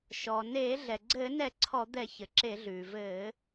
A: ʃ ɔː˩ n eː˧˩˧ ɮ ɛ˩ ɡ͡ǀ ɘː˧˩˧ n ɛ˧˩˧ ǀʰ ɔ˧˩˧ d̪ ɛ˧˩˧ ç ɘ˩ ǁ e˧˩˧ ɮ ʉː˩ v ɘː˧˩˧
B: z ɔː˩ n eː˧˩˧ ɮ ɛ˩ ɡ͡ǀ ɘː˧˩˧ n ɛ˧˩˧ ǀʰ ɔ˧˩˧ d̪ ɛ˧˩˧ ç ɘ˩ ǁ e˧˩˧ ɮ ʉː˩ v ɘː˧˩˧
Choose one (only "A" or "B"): A